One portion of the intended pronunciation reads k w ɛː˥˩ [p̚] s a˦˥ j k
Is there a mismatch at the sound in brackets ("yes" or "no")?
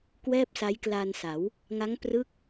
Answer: no